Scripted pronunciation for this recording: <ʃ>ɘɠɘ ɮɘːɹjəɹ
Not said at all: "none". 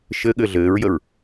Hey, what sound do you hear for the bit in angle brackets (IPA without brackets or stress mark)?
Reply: ʃ